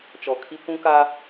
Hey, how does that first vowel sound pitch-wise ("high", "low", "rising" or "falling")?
low